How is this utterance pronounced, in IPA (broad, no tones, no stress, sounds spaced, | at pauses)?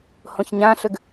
h õ ç ɲ ã ɬ ø ɡ